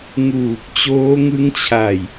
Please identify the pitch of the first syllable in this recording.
low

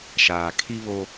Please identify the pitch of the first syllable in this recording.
low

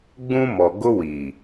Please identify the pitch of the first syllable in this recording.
high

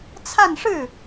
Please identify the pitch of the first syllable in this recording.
falling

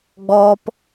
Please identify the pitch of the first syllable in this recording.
high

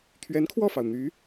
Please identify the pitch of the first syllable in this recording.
rising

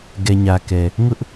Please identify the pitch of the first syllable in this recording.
low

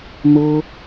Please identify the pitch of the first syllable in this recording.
high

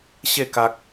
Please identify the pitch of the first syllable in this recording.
falling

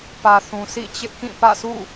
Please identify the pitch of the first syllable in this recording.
low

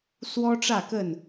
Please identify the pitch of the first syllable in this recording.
high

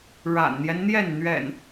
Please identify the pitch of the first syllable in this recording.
low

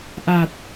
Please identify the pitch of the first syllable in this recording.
low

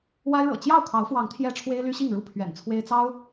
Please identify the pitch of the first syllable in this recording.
high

